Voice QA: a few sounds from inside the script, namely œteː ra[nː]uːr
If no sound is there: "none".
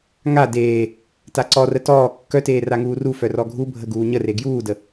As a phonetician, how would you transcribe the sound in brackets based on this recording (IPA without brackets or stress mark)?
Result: ŋ